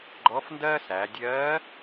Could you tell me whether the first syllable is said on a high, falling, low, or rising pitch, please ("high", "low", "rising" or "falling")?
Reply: rising